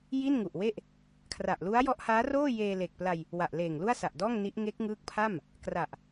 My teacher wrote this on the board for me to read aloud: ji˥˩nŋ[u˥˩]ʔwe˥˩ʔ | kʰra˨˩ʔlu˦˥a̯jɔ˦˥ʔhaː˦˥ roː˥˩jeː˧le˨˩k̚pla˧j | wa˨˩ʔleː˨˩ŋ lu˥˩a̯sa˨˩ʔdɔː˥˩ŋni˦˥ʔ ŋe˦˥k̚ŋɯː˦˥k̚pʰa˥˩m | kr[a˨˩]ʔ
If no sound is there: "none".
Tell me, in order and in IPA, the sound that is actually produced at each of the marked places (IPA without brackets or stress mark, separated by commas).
u˨˩, a˨˩